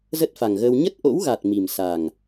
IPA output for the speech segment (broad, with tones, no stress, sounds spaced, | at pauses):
z ə˦˥ t̚ f a˨˩ ŋ ɣ əː˧ w ɲ ə˦˥ t̚ ʔ o̰˧˥ w ɣ a˨˩ t̚ m i˨˩ m s a˨˩ ŋ